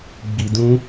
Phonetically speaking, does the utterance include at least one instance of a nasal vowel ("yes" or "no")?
yes